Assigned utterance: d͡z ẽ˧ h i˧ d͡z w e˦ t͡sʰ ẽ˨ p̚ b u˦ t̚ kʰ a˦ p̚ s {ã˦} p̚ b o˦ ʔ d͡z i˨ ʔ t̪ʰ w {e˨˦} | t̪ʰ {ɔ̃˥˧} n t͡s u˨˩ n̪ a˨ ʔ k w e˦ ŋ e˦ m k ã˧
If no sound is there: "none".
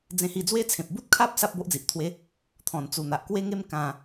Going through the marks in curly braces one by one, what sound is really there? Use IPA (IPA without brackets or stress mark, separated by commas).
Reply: a˦, e˦, ɔ̃˨˩